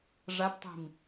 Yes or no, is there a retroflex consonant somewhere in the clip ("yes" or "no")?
yes